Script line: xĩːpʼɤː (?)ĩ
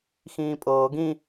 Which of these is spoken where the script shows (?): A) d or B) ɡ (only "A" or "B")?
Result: B